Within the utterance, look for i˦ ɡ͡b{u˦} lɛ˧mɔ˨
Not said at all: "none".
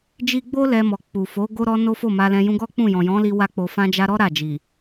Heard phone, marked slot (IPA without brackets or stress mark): o˦